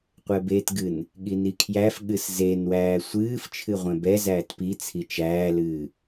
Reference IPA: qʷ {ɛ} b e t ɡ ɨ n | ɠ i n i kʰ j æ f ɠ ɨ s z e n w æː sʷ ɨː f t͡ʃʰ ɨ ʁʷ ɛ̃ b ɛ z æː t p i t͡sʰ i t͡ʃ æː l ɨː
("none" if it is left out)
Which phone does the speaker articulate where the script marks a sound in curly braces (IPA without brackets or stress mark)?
ɛ